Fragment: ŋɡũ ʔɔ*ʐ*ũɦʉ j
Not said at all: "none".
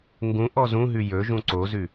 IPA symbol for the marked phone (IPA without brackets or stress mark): z